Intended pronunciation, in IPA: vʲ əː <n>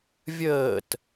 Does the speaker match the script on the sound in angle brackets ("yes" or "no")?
no